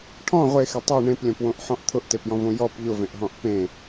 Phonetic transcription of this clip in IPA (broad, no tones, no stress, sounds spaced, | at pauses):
ʈʰ ɔ̃ ʁʷ e x e tˤ o ɳ ẽ p lʲ ɔ̃ p w õ ʔ ħ ɔ̃ ʔ t̪ʰ ʊ ʔ t e p j ɔ̃ v õ j ɔ p ʎ ʊ v ẽ ʔ ɦ ɔ̃ ʔ p ẽ